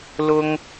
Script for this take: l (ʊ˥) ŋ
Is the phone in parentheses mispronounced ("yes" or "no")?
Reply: no